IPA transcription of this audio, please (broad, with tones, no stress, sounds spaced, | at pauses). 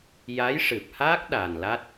j a˧˥ j ʂ ɨ˨˩ p̚ h aː˦˥ k̚ ɗ aː˨˩ n l a˦˥ t̚